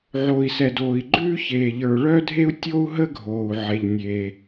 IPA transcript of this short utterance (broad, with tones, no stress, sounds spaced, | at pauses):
ʕ o˩ i̯ s ɛ˩ d oː˩ i̯ ɡ͡ǃ ʉː˥ ç eː˩ ʎ ə˞˩ ɭ œ˥ dʱ e˥ u̯ tʲ o˥ u̯ ɦ ə˥ ɡʱ oː˩ u̯ ʕ e˩ ʎ nʲ eː˩